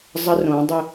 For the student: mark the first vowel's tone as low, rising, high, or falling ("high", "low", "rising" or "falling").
high